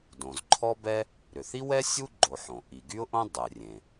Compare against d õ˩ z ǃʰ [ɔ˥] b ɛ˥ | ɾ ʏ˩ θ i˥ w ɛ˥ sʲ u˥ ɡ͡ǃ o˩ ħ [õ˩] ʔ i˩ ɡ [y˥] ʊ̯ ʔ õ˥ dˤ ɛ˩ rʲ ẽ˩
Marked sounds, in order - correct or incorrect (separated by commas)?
correct, correct, correct